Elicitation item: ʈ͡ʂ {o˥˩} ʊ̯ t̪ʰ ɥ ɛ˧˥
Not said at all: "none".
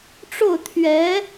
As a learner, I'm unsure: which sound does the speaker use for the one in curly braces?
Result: o˥˩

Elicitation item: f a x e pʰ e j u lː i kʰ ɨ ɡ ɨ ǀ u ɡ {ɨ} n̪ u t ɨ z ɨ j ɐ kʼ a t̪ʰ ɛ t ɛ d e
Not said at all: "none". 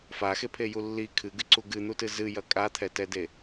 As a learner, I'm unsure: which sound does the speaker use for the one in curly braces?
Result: ɨ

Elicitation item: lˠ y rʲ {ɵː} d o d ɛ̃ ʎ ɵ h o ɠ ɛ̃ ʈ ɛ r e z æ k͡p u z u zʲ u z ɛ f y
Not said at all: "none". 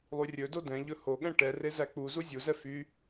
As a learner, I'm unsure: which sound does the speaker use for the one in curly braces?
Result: ɵ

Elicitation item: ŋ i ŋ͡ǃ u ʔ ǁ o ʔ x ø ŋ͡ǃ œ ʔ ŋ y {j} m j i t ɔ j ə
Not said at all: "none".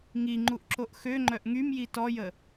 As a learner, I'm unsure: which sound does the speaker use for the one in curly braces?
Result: none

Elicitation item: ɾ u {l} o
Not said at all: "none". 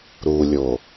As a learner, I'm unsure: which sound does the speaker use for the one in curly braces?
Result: lʲ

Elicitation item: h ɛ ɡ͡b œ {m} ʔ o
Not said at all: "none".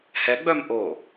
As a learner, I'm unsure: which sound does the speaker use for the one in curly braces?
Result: m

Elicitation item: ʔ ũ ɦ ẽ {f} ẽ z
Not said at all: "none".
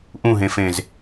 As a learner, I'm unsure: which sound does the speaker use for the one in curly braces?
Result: f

